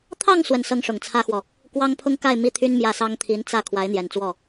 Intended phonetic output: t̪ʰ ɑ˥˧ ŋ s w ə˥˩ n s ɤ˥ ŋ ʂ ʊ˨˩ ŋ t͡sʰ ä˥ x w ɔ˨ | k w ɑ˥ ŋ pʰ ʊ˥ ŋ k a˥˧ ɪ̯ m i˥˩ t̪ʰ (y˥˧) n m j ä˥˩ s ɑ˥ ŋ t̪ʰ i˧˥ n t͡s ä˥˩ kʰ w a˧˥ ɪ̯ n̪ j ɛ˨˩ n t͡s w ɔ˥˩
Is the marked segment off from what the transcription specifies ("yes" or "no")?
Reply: yes